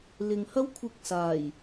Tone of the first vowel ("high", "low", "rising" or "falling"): low